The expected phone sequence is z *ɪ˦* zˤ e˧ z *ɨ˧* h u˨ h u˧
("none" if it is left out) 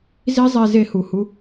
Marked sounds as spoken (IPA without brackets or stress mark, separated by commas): i˦, e˧